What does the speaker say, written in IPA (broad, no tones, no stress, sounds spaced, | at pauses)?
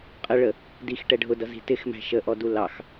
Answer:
qʼ ə ɭ ə | d i x ʈ ɛ ɖʱ ʊ d ʌ z i̤ t ɪ x m æ̤ ʃ ə ʔ ɔ d u l ɑ x